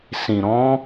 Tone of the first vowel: low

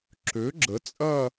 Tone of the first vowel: rising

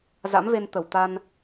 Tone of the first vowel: rising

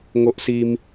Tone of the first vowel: high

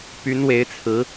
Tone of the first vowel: rising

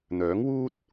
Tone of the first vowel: rising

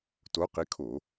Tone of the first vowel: rising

